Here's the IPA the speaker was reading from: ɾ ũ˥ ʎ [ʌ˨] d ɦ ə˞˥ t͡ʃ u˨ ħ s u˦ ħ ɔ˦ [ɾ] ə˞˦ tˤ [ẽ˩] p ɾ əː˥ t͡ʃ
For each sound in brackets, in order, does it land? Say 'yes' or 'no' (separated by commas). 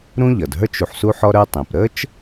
no, yes, yes